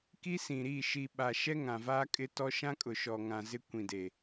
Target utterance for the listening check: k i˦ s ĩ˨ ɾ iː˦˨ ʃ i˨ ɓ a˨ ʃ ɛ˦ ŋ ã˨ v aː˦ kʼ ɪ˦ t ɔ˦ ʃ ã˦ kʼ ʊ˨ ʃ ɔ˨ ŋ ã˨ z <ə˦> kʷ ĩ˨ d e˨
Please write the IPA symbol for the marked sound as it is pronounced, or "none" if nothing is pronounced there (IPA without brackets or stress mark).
ɪ˦